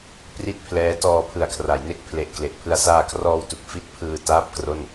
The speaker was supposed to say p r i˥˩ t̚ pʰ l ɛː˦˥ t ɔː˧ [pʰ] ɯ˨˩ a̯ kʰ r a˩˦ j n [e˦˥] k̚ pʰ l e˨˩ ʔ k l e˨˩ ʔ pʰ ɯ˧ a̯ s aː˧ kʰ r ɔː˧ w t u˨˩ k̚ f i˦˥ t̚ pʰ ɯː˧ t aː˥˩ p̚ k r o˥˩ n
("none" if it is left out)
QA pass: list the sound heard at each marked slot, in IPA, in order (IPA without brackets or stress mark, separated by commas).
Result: pʰ, e˦˥